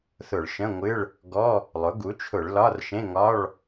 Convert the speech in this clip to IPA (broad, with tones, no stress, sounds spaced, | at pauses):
θ ʊ˧˩˧ ɭ ʃ ə̃˧˥˧ ŋʷ ɨ˧˥˧ ɭ | ɡ ɔ˧˥˧ | lˠ ʊ˩˥ ɡ u˩˥ t͡ʃʰ ʊ˧˩˧ ɭ l ɒ˧˥˧ r ʃ ẽ˧˥˧ ŋ ɒ˧˥˧ ɭ